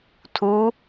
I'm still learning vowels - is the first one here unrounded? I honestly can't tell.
no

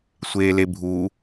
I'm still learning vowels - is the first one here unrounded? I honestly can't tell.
yes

